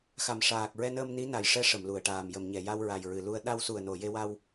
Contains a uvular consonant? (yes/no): no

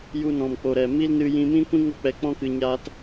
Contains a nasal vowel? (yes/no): yes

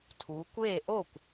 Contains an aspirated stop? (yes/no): yes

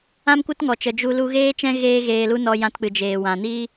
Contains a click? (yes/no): no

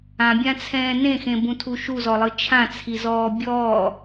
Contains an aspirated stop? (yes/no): yes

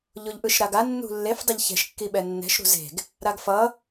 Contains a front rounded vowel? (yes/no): no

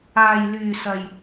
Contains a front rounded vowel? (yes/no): yes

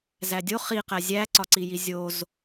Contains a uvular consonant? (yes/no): yes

